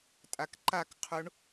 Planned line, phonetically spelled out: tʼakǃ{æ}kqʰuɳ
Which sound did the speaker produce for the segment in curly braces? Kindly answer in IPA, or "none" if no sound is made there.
a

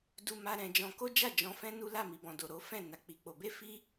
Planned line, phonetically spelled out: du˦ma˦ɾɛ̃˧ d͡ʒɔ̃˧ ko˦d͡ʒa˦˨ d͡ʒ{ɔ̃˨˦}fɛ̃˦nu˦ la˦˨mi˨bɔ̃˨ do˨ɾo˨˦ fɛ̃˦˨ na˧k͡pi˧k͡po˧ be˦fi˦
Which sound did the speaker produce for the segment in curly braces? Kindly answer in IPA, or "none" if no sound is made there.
ɔ̃˧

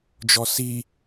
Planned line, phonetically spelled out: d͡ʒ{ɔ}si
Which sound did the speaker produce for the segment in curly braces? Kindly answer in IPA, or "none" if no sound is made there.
ɔ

